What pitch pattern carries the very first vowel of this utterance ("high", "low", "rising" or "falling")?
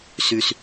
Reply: high